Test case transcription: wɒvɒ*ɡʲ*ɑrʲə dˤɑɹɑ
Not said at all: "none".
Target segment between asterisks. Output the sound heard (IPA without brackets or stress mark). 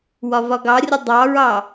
ɡ